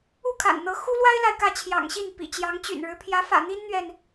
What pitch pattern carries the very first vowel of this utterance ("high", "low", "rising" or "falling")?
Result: falling